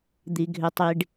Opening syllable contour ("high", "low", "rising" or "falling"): low